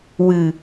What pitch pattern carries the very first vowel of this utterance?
low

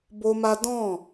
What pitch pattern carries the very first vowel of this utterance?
high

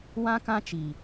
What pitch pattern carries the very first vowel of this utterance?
high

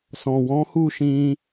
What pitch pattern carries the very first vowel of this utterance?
low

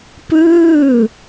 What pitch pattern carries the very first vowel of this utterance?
falling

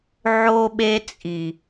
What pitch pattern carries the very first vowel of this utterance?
high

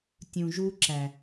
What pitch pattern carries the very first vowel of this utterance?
low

